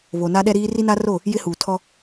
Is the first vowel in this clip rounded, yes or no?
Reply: yes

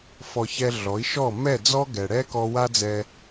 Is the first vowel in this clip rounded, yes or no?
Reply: yes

